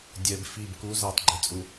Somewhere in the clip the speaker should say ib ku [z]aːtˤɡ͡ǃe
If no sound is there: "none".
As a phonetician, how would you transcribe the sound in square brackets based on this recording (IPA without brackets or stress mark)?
z